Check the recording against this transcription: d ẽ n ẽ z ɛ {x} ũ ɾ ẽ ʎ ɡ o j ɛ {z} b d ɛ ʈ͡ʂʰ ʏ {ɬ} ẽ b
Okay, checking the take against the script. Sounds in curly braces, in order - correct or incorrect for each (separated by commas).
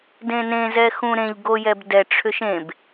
correct, incorrect, incorrect